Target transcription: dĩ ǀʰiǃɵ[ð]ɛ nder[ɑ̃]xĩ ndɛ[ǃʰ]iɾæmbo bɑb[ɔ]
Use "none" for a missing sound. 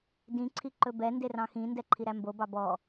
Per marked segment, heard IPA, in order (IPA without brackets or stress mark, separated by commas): b, ɑ̃, ǃʰ, ɔ